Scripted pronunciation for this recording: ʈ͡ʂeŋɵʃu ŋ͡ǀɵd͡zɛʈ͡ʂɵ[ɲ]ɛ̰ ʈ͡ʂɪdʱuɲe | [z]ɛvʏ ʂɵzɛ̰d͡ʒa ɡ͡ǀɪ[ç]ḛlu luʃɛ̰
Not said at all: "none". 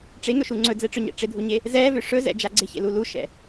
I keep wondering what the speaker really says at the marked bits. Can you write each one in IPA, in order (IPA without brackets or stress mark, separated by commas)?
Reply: ɲ, z, ç